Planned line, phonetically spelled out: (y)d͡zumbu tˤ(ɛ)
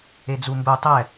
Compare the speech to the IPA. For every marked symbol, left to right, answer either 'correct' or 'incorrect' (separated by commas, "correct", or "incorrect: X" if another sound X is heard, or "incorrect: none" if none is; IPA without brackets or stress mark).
incorrect: e, correct